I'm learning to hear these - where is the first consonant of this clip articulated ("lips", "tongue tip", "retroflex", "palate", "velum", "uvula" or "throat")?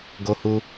velum